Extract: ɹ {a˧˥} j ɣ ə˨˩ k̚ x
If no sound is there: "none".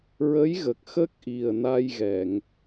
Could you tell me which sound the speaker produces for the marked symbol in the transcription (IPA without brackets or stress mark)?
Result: ə˧˥